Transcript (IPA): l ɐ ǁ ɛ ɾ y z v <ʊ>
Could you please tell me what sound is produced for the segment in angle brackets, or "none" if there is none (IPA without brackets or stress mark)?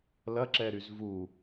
u